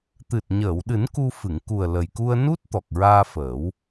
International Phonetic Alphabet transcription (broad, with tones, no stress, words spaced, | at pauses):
t̪ɨ˨˩t̚ɲəː˨˩˨wɗɨ˨˩˦n ku˧ fɨ˨˩˨ŋku˨˩ə̯ lə˨˩jku˧ə̯ nu˦˥t̚ t̪ɔ˨˩k̚ɹaː˧fəː˨˩˦w